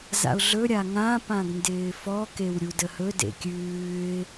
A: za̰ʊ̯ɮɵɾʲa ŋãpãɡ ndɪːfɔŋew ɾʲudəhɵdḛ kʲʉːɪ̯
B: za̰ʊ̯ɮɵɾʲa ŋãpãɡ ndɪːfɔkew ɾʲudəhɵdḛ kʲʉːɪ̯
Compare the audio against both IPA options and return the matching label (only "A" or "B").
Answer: B